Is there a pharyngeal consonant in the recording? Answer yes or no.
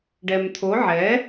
yes